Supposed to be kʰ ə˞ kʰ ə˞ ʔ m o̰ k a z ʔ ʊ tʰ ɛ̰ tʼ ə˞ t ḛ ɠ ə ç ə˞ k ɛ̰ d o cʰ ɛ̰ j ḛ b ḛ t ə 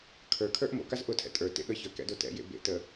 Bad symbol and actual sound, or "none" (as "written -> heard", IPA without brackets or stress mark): cʰ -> t